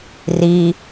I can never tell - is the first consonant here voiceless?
no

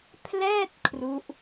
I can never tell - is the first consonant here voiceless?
yes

